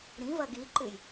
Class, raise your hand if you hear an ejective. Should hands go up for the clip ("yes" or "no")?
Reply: no